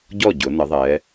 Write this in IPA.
ɟ ɔ˥˩ ɟ ʊ˩˧ n ə˩˧ ðˤ ɛ˩˧

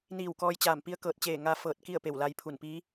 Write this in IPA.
n iː˧˩ w k ɔː˧ j t͡ɕ aː˧˩ m p i˧˥ ə̯ k ɤː˧˩ t̚ t͡ɕ eː˧˩ ŋ a˧ f ɤː˧˩ t̚ k i˥˨ ə̯ p e˧˩ w l a˧ j pʰ u˧˩ n p iː˧˥

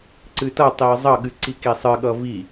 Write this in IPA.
ǀ ɨ t ʌ tˤ i ə̯ zˤ ʌ ɠ ɨ ǀ i k i sˤ ɨ ɠ ʌ v i

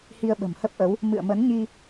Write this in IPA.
h i˧ ə̯ ɓ ə̤˨˩ m h ə˦˥ p̚ ʔ ə˨˦ w | m ɨ̰˧˨ ə̯ m ə˨˦ n ɲ i˧

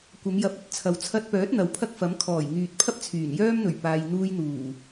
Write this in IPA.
kʷ ɐ˨˧ m j ɐ˨˥ p̚ ɵ˨ t̚ t͡sʰ ɐ˨ w t͡sʰ ɐ˧ t̚ p œː˨˥ t̚ n̪ ɐ˨˧ w pʰ ɐ˥ k̚ f ɐ˨˥ m kʰ ɔː˨˩ j ŋ yː˨ t̚ pʰ ɐ˥ p̚ t͡sʰ yː˨˩ n j œː˥ m n̪ ɵ˨˩ ɥ p aː˨ j n̪ uː˧ j n̪ uː˨˩

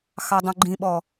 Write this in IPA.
x ɑ dˤ ũ ɡ͡ǃ ĩ ɓ ɔ

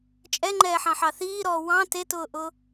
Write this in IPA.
t͡ʃʼ ɛ ŋ͡ǃ ɛː ħ ɑ̃ ħ ɑ θ iː ɾ ɔː w ɑ̃ t e t ʊː ʔ ʊ

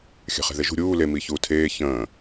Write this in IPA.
xʲ æ̤ χ e̤ ð e ʒ ṳ ɾʲ uː l e m i ç uː tʰ eː ç ə̃ː

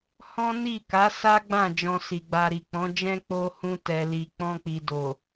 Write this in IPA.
h ɔ̃˦ n i˦˨ k a˨˦ s a˦ ɡ͡b ã˦˨ d͡ʒ ɔ̃˧ s i˨ ɡ͡b a˧ ɾ i˨ k͡p ɔ̃˨˦ d͡ʒ ɛ̃˦ k͡p o˧ h ũ˧ t ɛ˨ l i˨ k͡p ɔ̃˧ k͡p i˨ d o˨

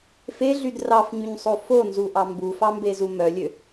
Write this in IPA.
f e ɮ y d r ɑ f ɲ y ɲ sˤ o f o n z u ʔ ɑ m b u f ɑ m b e z u m œ lʲ ø

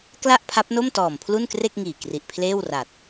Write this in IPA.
k l a˥˩ ʔ pʰ a˦˥ p̚ n o˥˩ m t ɔː˨˩ m pʰ l u˥˩ n k r e˥˩ k̚ ŋ iː˨˩ k r i˨˩ ʔ pʰ l eː˥˩ w r a˨˩ t̚

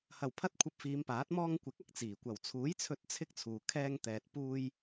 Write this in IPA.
h ɐ˨˩ w pʰ ɐ˥ t̚ kʷʰ ɐ˧ p̚ f iː˨˧ m p aː˨˥ t̚ m ɔː˧ ŋ kʷ ɪ˨˥ k̚ ɐ˨ k̚ t͡s iː˨˩ kʷ ɐ˨˩ w t͡sʰ uː˨˥ j t͡sʰ ɵ˧ t̚ t͡sʰ ɪ˥ k̚ t͡sʰ uː˨ kʰ ɛː˧ ŋ t̪ ɛː˨ t̚ p uː˧ j

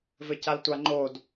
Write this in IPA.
v ɘ c a l tʷ a ŋ͡ǃ o d

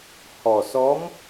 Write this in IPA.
h ɔ˨˩ s ɔ˧˥ m

